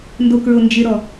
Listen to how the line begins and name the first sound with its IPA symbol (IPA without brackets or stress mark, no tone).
n